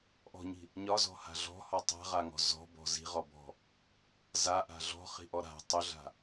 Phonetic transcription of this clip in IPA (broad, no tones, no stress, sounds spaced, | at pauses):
ʔ ɔ̤ ɲ i̤ | ɲ ɒ z ɔ̤ h a̤ ɮ ɔ̤ h ɔ tˤ a̤ ʁ a ŋ ɔ̤ z ɔ̤ b ɔ̤ z i̤ ʁ ɔ b ɔ̤ | z a ʔ a̤ ɮ ɔ̤ χ i̤ ʔ ɔ ɾ a̤ tˤ ɵ ɮ a̤